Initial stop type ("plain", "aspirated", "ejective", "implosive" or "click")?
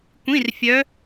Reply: plain